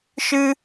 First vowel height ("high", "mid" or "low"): high